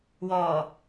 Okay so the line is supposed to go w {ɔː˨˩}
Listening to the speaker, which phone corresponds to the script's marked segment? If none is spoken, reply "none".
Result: ɔː˨˩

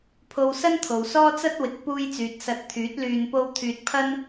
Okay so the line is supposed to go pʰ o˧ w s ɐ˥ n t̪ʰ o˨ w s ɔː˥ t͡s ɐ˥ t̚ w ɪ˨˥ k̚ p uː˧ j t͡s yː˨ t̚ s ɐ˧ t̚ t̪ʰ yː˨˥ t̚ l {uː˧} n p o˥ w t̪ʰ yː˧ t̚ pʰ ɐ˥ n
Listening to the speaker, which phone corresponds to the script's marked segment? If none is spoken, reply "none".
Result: yː˧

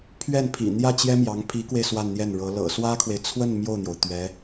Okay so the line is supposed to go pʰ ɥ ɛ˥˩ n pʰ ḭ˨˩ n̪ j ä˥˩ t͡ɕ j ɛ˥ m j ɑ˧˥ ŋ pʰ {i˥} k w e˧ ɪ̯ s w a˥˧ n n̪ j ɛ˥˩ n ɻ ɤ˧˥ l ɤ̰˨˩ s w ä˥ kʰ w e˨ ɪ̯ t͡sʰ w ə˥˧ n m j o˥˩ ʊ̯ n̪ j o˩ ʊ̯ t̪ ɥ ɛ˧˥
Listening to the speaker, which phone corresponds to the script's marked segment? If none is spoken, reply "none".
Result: i˧˥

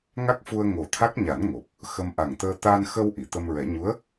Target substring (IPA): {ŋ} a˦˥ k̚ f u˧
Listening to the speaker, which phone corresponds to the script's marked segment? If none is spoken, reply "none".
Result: ŋ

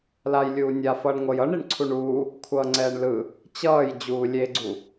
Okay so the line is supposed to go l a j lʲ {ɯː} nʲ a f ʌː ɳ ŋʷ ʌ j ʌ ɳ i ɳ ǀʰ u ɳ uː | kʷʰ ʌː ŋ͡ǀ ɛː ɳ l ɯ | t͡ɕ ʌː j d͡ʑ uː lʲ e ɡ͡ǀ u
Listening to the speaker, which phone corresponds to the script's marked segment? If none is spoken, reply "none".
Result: uː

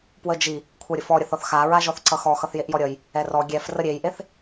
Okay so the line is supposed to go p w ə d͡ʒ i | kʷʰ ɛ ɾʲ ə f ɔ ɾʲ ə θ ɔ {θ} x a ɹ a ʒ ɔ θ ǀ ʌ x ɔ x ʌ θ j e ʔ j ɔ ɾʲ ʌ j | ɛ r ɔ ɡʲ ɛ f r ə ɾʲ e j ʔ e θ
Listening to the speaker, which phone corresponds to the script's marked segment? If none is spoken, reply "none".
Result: θ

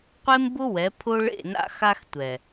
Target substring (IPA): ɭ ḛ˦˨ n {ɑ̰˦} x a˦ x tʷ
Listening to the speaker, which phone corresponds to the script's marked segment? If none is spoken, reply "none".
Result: a̰˦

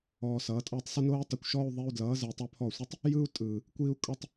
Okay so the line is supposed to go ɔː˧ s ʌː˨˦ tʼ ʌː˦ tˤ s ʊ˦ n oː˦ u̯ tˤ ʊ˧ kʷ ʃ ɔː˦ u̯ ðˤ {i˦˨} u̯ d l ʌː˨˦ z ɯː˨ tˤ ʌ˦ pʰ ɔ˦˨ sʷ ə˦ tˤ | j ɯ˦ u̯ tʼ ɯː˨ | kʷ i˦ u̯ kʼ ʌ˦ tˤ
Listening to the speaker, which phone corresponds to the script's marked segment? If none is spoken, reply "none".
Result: i˧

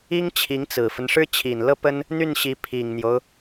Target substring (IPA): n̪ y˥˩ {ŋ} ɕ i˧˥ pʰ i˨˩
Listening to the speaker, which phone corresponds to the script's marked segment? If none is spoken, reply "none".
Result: n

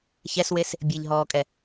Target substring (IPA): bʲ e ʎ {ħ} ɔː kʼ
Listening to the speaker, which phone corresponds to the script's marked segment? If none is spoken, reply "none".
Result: ɦ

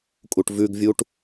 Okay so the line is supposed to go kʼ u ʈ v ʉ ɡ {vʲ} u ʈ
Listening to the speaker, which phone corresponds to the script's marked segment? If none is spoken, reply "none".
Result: vʲ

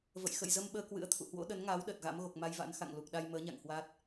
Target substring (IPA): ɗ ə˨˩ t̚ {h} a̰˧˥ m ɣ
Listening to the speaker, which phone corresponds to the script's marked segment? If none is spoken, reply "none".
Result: ɣ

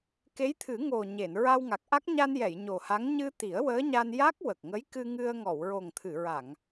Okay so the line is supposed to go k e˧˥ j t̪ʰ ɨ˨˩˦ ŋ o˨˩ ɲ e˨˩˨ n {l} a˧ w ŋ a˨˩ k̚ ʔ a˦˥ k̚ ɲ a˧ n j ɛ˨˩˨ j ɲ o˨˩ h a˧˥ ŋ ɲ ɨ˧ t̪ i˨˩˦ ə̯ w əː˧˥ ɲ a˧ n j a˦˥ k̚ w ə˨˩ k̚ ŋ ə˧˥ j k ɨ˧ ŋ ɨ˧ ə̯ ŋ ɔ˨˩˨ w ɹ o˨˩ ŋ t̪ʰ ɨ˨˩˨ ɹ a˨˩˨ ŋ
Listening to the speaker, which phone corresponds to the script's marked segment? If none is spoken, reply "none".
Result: ɹ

